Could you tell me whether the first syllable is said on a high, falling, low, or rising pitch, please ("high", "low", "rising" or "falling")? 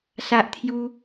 high